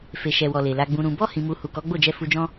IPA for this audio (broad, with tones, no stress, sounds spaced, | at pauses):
f e˨ ʃ ɛ˨ w ɔ˨ l e˨ l a˧ ɡ͡b ũ˧ ɾ ũ˧ b ɔ˦ h ĩ˧ m u˧ h u˨ k ɔ˨˦ ɡ͡b o˦˨ d͡ʒ ɛ˧ f u˧ d͡ʒ ɔ̃˦